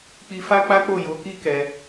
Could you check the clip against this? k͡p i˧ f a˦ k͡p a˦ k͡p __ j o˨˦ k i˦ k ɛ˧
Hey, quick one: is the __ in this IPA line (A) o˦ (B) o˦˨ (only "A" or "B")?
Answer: B